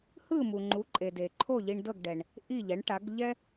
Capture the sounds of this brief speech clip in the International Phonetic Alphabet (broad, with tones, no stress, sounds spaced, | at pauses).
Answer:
h ɯ˥˩ m u˩ ŋ͡ǃ u˩˥ ǃʼ e˩ d e˩ ǃʰ o˥˩ ʎ i˧ ɳ d ɤ˥˩ ɡ ɖ ɛ˩ ɳ | ʔ i˥˩ ʎ ɛ˩˥ ɳ ʈ a˩˥ ɡ ʎ ɛ˥